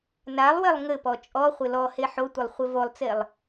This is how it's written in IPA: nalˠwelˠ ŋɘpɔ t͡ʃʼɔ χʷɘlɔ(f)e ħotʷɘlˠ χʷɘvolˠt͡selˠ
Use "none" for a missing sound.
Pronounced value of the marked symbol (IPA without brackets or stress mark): h